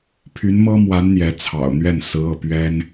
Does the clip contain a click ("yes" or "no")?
no